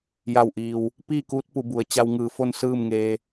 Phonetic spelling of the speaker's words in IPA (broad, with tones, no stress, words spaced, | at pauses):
ja˧˩wʔiː˩w | piː˥˨kuː˧˥t̚pu˩˧ bu˩˧ə̯ t͡ɕa˧wŋɯː˧˩fo˥˨n sɯː˥˨mŋeː˧